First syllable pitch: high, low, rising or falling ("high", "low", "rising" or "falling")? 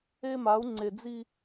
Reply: high